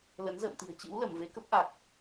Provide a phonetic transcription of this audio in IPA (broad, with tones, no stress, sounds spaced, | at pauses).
l ə˨˦ n z ə̰ː˧˨ m t̪ i̤˨˩ ə̯ t͡ɕ ɨ̰˧˥ w l ə˧˩ m v e˨˦ k ə˦˥ p̚ ʔ a˨˩ k̚